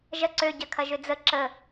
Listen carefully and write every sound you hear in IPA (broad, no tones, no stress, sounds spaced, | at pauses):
ʒ ɐ ǀ ø ɟ ɐ kʰ ɐ ʒ ø d͡z ə ǁ ə